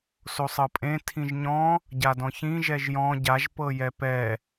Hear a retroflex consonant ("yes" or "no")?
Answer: no